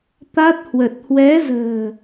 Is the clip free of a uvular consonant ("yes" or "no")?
yes